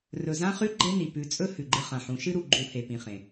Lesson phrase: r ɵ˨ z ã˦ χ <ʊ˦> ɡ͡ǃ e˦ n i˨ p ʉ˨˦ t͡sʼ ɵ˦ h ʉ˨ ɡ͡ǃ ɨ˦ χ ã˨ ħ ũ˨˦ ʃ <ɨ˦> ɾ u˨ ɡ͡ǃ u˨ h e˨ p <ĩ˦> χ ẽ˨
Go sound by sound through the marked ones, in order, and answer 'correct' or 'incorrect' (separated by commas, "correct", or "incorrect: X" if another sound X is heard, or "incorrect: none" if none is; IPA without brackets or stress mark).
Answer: incorrect: ʉ˦, correct, incorrect: ĩ˨